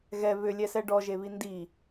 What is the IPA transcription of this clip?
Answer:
ɣ ɛ β ʏ lʲ ɛ s ɛ ɖ ɔ ʒ e β i n d i

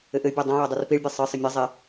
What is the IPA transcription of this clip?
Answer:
ɘ ʔ ɘ bʲ o dˤ õ j o dˤ u r p i ɭ bʲ ɛ sˤ ɨ sˤ ɘ mʲ ɨ zˤ e

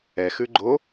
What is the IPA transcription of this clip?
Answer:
ɛ x ʉ ɡ͡ǃ o

